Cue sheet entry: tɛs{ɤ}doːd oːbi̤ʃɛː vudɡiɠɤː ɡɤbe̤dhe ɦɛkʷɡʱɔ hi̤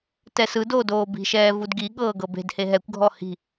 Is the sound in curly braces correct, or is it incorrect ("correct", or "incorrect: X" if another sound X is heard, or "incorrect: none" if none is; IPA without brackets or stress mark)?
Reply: incorrect: ɯ